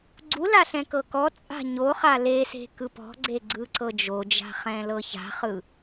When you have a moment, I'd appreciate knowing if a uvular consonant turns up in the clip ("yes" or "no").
yes